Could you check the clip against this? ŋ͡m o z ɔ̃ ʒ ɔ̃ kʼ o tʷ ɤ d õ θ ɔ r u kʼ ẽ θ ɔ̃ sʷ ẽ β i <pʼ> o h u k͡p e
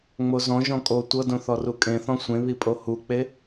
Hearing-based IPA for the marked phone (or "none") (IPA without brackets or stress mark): pʼ